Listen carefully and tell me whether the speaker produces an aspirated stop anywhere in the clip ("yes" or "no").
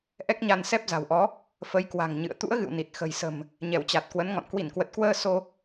no